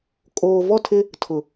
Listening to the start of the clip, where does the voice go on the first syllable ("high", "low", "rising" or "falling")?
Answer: low